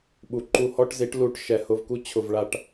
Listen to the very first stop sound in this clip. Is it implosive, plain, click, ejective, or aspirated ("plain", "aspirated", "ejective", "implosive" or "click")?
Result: implosive